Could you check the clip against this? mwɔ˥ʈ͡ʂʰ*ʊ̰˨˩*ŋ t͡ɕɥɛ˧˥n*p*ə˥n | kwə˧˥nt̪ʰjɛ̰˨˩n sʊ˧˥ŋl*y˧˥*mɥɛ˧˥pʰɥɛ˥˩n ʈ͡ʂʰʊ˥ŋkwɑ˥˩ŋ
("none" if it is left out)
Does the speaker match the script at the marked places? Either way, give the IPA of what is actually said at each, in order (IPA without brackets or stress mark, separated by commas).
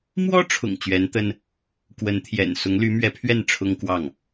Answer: ʊ̰˨˩, t̪, y˧˥